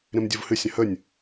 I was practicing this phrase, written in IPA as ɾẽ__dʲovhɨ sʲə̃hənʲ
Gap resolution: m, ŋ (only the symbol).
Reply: m